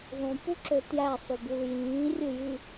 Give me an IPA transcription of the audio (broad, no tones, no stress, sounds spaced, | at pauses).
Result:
ðˤ ũ p u ǁ ø t j æ sˤ y b w ɯ j ĩː rʲ ɯ j y